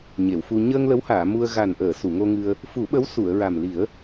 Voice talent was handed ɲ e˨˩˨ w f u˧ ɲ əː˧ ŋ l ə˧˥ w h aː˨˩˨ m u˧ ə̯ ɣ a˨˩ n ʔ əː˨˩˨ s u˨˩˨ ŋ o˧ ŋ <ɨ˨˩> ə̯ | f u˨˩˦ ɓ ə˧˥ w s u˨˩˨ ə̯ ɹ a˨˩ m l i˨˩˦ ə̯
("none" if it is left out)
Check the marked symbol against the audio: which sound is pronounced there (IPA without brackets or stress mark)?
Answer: ɨ˧